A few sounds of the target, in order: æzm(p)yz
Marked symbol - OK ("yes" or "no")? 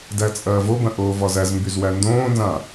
no